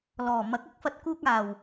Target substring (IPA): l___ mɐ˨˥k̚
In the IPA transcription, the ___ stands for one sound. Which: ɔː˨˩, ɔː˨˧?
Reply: ɔː˨˩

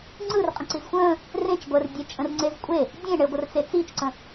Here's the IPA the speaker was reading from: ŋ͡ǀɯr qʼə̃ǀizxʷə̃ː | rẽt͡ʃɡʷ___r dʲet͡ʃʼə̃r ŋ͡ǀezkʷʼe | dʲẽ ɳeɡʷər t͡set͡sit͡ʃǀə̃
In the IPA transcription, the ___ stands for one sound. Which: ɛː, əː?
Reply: əː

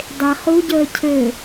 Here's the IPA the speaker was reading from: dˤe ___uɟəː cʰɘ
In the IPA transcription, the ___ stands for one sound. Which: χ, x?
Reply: χ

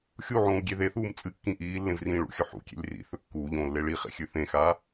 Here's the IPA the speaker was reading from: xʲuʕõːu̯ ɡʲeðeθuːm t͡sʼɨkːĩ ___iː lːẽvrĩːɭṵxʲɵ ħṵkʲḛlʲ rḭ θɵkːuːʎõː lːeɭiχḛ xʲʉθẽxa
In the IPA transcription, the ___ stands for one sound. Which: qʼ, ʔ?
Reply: ʔ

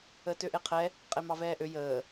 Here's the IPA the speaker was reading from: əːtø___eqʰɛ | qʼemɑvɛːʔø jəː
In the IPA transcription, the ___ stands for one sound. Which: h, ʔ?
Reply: ʔ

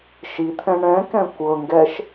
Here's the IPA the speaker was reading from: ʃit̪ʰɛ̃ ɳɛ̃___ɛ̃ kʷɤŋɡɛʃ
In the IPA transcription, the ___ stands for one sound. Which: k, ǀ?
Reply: k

